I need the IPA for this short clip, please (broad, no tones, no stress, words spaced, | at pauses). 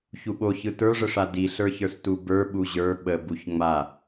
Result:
çuɓoçɯ tə˞ʐəʂa diɬə˞çə˞s tubə˞ɓu ʑə˞ ɓəbuç ŋ͡ma